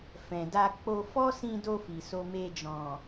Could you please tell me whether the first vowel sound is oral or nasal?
nasal